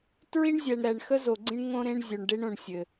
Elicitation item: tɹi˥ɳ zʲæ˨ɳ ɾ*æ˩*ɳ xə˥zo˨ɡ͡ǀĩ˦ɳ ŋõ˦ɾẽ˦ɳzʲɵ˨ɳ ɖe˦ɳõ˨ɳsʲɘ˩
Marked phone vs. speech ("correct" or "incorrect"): incorrect